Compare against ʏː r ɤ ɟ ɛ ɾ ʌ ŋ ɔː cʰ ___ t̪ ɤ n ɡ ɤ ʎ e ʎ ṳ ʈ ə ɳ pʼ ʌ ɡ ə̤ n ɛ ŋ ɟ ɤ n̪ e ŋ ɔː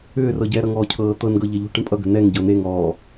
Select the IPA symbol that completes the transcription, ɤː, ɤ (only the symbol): ɤː